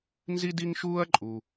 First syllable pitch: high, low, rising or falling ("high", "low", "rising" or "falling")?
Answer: high